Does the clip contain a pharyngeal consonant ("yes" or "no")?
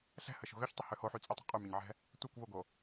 yes